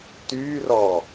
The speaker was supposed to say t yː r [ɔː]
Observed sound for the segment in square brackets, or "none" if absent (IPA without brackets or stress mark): ɔː